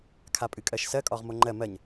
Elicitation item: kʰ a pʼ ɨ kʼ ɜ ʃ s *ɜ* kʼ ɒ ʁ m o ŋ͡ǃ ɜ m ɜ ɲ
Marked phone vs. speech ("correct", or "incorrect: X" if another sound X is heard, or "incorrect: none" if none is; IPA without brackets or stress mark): correct